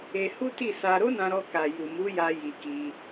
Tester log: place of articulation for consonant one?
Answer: glottal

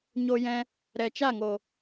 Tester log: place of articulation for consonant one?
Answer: palatal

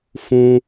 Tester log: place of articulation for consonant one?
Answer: labial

